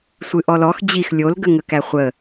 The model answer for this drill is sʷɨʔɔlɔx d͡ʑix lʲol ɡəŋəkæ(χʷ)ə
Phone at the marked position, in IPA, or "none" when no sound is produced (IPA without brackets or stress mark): χʷ